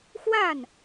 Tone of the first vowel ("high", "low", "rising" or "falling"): falling